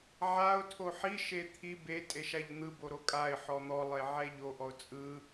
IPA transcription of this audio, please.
ʕ a ʊ̯ tʰ o ħ i ʃ e t̪ʰ i b e tʼ e ʃ a ʎ n̪ ɯ b o ɾ o kʼ a ɪ̯ ħ ɔ n̪ ɔ lˠ e ʕ ɛ ʎ o ʔ ɔ ʊ̯ t͡sʼ ɯ

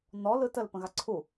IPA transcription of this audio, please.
n ɔ l ɯ t ə l p ə̃ ɣ a ǀʰ u

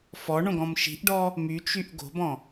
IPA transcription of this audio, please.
f ɔ ɳ õ ɡ ɔ̃ m ʃ i̤ ʔ ɖ ɔ | m y t͡ʃ y ʔ ɡ o̤ b ɔ̃

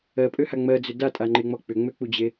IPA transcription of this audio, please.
ɜ pʼ ø h a ŋ͡m ɜ d͡z ʏ d a tʼ a ŋ͡ǃ e ŋ͡m ɔ k͡p ʏ ŋ͡m ø k͡p u d͡ʑ e

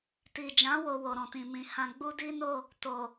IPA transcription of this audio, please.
t i˨ d͡ʒ ã˨˦ w o˧ w o˨ ɾ ɔ̃˨ t ĩ˨ m ĩ˨ h ã˧ ɡ͡b u˦ d i˦ n o˦˨ | t o˨

